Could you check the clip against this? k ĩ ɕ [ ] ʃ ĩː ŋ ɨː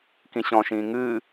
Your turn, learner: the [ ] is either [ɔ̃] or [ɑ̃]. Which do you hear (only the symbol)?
ɔ̃